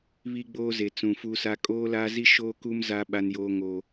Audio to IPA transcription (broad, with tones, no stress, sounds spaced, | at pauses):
β i˦ ɡ͡b oː˦ z e˨ t͡s ũ˨ f u˦ s a˦ kʼ oː˦ l aː˦ z i˦ ʃ oː˦ k u˦ m z a˦ ɓ a˦ n j oː˦ ŋ oː˦